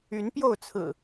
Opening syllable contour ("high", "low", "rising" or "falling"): rising